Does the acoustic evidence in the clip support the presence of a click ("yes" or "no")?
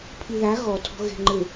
yes